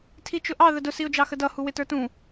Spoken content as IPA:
tʰit͡ʃʊʔɑ ðədʊ siʊ̯d͡ʒɑxədʌ huwɪtə˞tũ

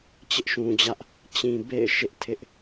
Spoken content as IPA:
t͡ɕɪ˦ʔʃũ˨d͡ʑä˦ʔ | t͡ɕĩ˨bḛ˦˨ɪ̯ ʃɪ˦ʔtʰɪ˦ʔ

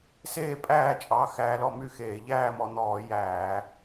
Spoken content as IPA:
seː˥˨pʼæː˥˨t͡ʃʼɑ˩˧˩ xæː˧lɔ˥˨my˥˨xeː˧˩˧ ʎæː˥˨mɔ˧ n̪ɔː˧˩˧ jæː˧˩˧

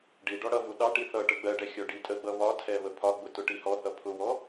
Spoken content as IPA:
ɖiɖɔ ɽʌvu ɗɑʈ iθʌʈə ɡ͡bɜɖɛ xʲɔɖitʼəɡ͡bʌ βɒtʰɛ βəpʰɒɡ͡bʊ tʊʈihɔθʌ pʰʊwɔ

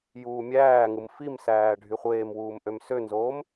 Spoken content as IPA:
juːmʲæːŋɯm fimsæː ɖʱyχʷeːmwuːm ʔømsønzoːm

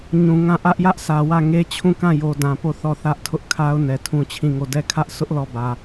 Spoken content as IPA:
ɲũ˨ŋã˦˨ ʔä˦ʔjä˦ʔ sʰä˨wä˦˨ ŋe˦ t͡ɕʰũ˦˨kã˦˨jo˨ dã˨po˦˨ θɔ˦˨θä˦ʔ tʰʊ˦ʔkʰa˦ʊ̯ nɛ˨tʰũ˦t͡ɕʰĩ˦˨ŋo˦˨ dɛ˦˨ kʰä˦ʔsʊ˦ʔ lɔ˦˨bä˨

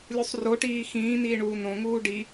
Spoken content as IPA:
lʲusˤroʈiː xĩːniːɳuː nõŋuː ɖi

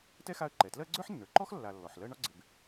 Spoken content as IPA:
tɛ˥xa˦ə̯ǃɛ˩tlɜ˥ ɡ͡ǀə˞˥ħnːə˞˩ǃɔ˥x lːa˨lːɔ˩ħlɜ˦ ɳɒ˥ɡ͡ǀɪ˨b

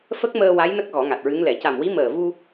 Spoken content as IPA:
fə˦˥k̚məː˧ wa˧˥jnə˦˥k̚ ɣɔ˨˩˦ŋa˨˩t̚ɹɨ˧˥ŋ lɛ˨˩˨ca˨˩mwi˧˥ məː˨˩vu˧

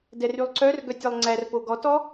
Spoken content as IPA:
dɛrylˠǀœrɡœtʲ ɛlˠŋ͡ǀærpo ɡɔtɔ

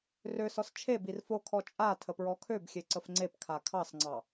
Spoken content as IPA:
røsɔs t͡ʃʰe birfokʰɔ t͡ʃʼa tʰəpɹɔkʰøbxʲe ǀəfŋ͡ǀepkʰa kʰɑsŋ͡ǀɑ

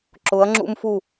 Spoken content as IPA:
ǁʊ˨˦ɐ̯ŋ͡ǁṵ˦mfu˦˨

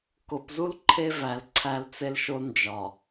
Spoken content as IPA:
ko˨pzu˦l ǃʰe˦væ˨l ǀʰæ˦lt͡se˦lʃo˦ nd͡ʒɒ˨

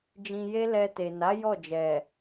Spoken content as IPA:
d͡ʒĩ˧je˦lɛ˧ te˨na˨˦ jɔ˦˨d͡ʒɛ˨

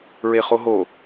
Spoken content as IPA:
ɹeχoɦo

